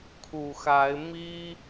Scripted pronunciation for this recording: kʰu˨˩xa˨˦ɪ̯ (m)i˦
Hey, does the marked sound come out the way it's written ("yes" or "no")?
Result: yes